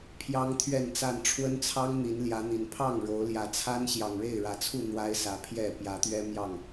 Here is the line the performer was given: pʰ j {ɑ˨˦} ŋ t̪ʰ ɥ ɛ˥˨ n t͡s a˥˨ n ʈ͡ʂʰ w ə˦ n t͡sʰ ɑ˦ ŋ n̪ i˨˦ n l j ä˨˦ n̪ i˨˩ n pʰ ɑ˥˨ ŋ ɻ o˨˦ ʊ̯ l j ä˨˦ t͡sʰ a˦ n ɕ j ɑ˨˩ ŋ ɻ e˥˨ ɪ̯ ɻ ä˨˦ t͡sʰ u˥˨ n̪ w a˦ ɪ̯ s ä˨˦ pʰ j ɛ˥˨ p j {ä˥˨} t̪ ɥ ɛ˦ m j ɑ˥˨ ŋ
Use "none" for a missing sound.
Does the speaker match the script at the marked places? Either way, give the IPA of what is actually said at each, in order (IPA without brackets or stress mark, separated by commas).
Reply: ɑ˦, ä˨˦